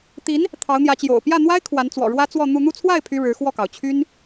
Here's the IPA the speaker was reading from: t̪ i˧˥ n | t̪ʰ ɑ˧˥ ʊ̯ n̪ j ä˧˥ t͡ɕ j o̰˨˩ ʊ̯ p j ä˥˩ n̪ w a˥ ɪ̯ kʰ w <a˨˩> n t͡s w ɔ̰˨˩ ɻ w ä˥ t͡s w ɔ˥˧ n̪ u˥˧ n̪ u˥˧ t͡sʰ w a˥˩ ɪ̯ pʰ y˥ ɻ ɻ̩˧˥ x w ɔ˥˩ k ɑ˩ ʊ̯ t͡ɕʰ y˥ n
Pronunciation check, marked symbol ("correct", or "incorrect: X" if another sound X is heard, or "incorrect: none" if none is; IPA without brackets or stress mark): incorrect: a˧˥